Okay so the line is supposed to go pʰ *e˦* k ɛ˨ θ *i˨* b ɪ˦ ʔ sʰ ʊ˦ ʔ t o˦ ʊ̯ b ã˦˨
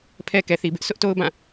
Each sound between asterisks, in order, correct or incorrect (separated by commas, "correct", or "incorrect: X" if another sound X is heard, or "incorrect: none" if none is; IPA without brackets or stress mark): incorrect: ɛ˦, correct